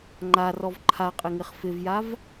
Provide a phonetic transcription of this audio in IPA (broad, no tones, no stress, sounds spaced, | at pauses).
ŋ͡ǃ a r ɔ v ǃʰ a qʼ ɪ ŋ ɪ χ f ɪ v j a v